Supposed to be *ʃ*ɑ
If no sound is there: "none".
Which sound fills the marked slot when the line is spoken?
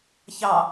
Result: ç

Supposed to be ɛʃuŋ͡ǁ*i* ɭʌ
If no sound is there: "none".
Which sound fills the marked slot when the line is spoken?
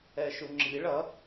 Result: i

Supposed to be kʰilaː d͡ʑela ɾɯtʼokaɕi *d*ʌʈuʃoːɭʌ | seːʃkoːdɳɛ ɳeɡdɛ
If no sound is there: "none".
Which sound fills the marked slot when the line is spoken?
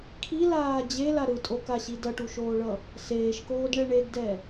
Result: d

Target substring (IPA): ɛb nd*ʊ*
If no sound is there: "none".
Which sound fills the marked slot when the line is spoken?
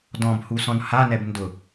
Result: ʊ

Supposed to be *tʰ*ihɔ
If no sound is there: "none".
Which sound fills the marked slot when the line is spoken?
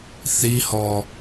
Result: θ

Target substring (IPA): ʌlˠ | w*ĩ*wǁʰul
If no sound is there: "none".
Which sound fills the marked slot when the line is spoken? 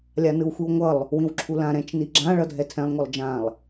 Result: ĩ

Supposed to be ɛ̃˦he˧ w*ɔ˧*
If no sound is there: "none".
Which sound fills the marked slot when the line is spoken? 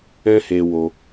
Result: o˧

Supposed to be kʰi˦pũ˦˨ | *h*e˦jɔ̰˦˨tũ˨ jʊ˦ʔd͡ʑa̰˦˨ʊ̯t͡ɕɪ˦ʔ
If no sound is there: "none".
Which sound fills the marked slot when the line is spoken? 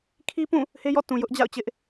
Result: h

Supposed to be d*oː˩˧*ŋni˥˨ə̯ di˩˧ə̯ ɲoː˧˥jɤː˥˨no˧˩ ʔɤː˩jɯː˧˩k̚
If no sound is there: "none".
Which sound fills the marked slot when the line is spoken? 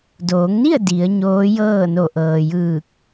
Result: oː˩˧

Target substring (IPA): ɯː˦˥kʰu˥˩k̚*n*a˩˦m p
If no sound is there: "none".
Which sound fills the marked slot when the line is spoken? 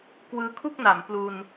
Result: n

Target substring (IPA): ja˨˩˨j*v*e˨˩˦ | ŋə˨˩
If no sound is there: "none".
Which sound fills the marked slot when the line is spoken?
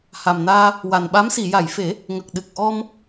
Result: f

